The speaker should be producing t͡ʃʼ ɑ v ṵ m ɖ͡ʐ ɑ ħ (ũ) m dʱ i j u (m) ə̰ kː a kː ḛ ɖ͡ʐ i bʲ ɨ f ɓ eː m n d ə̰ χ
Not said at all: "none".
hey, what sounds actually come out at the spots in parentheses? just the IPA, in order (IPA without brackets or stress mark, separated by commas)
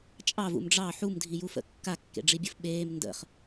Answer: u, f